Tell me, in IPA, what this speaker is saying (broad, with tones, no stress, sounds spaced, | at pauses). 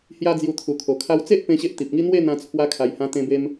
h j a˦ d͡z j u˧ t̪ʰ u˨˩ kʰ o˨˩ kʰ a˧ w t͡s e˦ ʔ p ẽ˦ ɕ e˦ ʔ t̪ i˨ p̚ ŋ i˦ n̪ w e˥˧ n̪ ã˧ t͡sʰ w a˧ kʰ a˨˩ j h ã˧ t̪ ẽ˧ b e˧ m